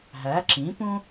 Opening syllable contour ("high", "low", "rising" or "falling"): rising